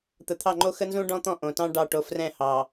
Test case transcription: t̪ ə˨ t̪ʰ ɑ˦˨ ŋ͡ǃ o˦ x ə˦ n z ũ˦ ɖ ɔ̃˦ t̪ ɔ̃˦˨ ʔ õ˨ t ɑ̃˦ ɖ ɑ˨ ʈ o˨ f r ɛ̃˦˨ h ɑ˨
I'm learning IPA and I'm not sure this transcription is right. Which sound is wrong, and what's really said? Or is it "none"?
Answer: none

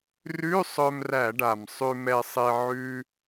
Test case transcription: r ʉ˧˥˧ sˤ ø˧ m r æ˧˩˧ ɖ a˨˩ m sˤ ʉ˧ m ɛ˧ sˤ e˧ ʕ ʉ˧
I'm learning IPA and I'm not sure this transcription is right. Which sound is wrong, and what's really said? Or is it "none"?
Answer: ø˧ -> œ˧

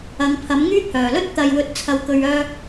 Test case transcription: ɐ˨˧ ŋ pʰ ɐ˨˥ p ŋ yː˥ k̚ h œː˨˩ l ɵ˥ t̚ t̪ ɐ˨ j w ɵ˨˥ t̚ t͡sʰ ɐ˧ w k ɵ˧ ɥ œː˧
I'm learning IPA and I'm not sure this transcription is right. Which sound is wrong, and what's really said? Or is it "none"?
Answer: p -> m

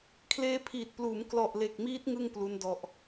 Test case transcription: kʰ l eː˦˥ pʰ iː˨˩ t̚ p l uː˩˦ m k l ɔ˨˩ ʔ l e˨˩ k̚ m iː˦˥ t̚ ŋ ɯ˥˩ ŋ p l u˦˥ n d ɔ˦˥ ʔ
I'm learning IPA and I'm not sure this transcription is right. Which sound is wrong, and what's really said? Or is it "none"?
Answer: none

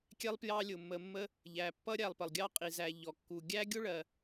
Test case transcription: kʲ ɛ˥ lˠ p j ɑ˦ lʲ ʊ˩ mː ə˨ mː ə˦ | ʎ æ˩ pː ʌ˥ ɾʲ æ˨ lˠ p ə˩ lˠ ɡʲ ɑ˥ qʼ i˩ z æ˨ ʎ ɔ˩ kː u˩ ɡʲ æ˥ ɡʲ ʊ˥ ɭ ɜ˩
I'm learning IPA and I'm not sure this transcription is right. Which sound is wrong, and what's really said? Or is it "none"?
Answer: none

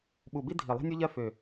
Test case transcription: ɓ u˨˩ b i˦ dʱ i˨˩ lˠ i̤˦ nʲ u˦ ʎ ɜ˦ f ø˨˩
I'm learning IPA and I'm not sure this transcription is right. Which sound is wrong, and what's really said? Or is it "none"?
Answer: none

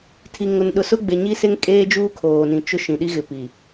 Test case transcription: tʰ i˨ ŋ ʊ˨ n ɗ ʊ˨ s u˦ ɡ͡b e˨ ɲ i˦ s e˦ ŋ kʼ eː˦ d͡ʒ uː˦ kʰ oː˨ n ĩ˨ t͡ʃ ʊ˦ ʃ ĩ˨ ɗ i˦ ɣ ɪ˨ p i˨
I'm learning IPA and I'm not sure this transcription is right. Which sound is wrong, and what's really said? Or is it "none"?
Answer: u˦ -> ʊ˦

